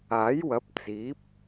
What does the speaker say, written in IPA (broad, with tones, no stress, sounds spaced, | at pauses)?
aː˨˥ j w ɐ˨˥ p̚ t͡s iː˨˥ p̚